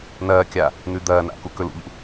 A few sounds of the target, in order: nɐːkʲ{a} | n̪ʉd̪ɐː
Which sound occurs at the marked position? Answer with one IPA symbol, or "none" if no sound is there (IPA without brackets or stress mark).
a